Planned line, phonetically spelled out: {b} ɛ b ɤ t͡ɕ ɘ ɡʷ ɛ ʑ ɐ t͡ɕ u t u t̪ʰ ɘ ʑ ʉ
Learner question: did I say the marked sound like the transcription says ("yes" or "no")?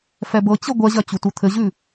no